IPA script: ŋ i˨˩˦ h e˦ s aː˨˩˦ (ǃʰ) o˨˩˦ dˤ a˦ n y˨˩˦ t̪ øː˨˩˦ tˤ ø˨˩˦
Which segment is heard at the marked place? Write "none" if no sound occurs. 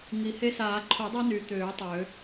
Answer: ǃʰ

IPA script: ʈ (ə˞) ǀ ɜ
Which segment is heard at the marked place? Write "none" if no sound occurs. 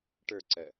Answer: ə˞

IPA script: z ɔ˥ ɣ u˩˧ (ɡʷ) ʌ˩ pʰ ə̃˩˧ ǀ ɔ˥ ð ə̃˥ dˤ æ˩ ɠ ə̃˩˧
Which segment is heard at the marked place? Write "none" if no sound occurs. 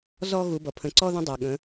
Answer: b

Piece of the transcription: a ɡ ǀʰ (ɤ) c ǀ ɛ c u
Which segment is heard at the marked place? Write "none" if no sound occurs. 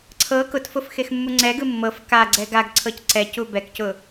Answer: ɤ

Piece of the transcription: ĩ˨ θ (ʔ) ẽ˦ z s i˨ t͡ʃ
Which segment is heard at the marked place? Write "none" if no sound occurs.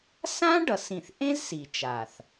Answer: ʔ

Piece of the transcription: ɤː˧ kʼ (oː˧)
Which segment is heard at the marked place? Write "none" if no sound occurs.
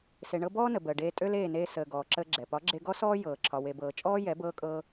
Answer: ɤː˧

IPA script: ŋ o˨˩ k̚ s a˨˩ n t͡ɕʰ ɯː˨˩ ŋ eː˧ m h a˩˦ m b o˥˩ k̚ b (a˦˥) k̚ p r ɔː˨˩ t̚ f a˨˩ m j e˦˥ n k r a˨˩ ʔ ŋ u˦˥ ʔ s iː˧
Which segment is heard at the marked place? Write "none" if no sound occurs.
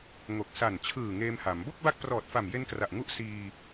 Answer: a˦˥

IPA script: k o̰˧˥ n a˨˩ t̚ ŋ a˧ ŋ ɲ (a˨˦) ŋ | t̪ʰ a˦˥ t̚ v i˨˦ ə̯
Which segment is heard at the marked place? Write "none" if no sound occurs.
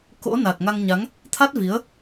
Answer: a˨˦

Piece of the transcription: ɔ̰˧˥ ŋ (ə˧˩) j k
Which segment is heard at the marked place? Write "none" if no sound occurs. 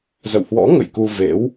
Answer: ə̰˧˨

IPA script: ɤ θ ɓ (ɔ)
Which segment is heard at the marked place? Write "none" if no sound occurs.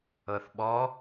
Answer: ɔ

